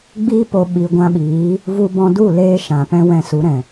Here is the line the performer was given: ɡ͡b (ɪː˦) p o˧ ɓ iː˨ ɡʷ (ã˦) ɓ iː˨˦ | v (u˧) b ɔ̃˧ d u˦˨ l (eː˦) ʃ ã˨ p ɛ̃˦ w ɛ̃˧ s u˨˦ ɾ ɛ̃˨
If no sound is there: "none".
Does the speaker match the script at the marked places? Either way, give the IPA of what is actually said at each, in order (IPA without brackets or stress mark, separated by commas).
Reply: iː˦, ã˧, u˧, eː˧